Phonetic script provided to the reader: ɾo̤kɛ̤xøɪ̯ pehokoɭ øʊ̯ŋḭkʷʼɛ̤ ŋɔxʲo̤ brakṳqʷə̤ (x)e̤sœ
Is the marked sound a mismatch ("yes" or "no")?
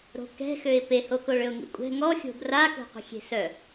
yes